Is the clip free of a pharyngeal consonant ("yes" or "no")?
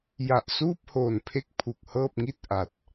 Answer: yes